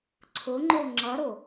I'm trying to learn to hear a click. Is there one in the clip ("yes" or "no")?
yes